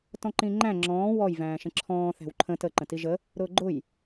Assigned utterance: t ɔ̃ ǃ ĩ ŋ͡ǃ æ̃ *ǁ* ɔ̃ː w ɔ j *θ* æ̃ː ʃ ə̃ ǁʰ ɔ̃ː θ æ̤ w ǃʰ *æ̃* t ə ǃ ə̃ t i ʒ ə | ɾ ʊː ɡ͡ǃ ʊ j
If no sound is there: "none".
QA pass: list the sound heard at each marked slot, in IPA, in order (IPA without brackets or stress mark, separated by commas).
ŋ͡ǁ, v, ə̃